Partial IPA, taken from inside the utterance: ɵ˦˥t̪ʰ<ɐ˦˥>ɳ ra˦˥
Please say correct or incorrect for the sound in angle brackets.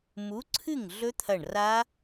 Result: incorrect